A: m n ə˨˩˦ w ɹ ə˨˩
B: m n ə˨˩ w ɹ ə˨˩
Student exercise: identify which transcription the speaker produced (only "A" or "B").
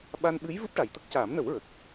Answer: A